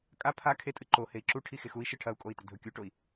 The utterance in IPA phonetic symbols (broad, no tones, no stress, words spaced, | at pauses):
kʼa pʰa kʰetʼɨ ǃo hei̯ǁu ʈʰixexui̯ ʃɨʈʰɐu̯kʼoi̯tɵ dʱɵkʲuʈoi̯